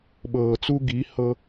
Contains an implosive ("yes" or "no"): yes